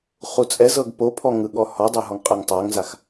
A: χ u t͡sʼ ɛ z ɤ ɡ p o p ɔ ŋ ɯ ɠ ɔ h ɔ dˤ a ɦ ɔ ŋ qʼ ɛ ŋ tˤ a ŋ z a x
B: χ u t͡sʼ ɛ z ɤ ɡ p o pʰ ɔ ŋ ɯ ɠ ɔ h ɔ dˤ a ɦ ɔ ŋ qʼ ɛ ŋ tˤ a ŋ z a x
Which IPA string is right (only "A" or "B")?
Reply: B